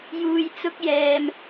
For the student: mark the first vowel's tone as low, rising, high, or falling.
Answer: low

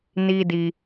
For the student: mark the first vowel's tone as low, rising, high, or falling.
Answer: high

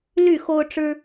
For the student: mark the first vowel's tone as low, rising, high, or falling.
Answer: falling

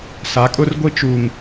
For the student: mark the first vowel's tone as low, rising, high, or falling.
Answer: rising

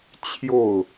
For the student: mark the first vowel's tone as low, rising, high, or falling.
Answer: falling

